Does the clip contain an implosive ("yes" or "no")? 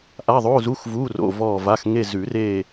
no